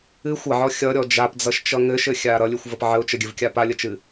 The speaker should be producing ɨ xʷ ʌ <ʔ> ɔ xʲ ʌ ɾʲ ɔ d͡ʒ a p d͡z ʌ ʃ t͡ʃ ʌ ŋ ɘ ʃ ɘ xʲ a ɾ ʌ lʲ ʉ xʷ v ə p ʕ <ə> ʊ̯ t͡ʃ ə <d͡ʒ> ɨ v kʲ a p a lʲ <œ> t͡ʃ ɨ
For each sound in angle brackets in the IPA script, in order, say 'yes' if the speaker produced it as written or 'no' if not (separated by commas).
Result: no, yes, no, no